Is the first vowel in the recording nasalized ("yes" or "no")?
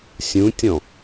yes